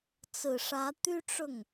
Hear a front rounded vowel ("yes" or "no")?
yes